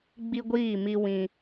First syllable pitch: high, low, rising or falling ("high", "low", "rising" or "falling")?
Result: high